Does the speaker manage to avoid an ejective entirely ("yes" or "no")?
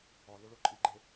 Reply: no